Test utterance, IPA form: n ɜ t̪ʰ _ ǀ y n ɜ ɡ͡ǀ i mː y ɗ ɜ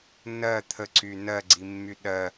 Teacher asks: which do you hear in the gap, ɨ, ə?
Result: ə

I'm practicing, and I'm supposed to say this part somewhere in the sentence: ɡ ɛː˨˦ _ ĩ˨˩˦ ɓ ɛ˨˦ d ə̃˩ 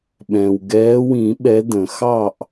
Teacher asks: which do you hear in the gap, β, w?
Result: w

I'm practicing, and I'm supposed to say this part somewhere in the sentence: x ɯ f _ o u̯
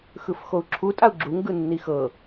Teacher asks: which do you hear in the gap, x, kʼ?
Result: x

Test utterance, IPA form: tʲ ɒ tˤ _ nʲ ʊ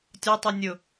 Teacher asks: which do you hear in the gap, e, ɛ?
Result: ɛ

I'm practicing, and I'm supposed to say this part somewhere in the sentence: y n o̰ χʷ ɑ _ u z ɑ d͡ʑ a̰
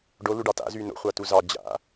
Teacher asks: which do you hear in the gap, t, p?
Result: t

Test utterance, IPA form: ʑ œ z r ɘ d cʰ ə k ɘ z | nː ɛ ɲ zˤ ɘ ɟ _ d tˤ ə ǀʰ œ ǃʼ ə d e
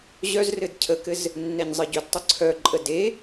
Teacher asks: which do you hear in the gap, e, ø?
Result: ø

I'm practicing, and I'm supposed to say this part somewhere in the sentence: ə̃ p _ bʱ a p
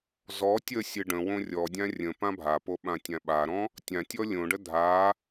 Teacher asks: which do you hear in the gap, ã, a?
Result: ã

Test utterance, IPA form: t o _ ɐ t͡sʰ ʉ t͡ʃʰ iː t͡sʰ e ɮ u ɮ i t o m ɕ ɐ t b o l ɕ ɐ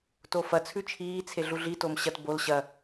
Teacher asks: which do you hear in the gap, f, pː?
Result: f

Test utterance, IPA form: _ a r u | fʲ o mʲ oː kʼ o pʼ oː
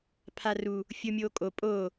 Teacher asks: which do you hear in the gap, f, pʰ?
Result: pʰ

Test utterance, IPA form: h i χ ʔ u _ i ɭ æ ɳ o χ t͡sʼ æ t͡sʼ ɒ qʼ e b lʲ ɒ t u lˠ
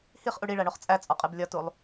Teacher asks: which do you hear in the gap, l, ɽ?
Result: ɽ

